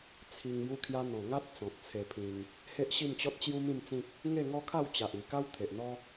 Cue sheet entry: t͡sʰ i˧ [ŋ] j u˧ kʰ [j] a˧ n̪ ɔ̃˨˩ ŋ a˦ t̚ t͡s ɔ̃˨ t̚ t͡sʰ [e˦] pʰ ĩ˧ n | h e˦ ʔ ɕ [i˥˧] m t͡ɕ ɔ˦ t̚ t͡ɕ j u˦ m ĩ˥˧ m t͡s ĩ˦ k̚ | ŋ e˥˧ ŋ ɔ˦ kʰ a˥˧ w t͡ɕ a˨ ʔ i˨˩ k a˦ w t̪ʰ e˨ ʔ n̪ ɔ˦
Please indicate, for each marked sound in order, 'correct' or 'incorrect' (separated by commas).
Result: correct, correct, incorrect, correct